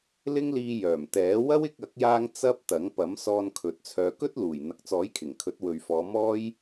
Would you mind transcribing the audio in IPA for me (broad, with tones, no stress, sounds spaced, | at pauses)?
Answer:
l ɪ˥ ŋ l iː˧ j œː˨˩ m t̪ ɛː˨˥ w ɐ˥ w ɪ˧ k̚ ɐ˨˥ k̚ j aː˧ ŋ t͡s ɐ˥ p̚ t̪ ɐ˨˥ ŋ p ɐ˨˥ m s ɔː˧ n kʰ ɵ˨ t̚ t͡sʰ œː˨ k ɵ˥ t̚ l uː˨˩ j n̪ ɐ˨ k̚ t͡s ɔː˨˥ j kʰ ɪ˨˩ ŋ kʰ ɵ˨˥ t̚ w ɵ˨ ɥ f ɔː˨˧ m ɔː˥ j